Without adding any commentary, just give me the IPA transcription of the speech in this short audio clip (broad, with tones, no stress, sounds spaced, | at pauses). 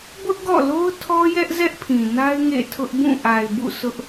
b ʊ˦ ʔ ɡ ɔ̰˦˨ l o˦ ʊ̯ tʰ ɔ˦ j ɛ˦ ʔ z ɛ˦ ʔ pʰ ĩ˨ n a˦ ɪ̯ ŋ ḛ˦˨ tʰ ʊ˦ ʔ b ũ˦˨ ʔ a˨ ɪ̯ b ṵ˦˨ sʰ ʊ˦ ʔ